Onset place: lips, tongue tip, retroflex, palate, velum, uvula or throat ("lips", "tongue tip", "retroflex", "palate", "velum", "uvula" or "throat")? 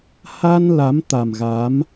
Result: throat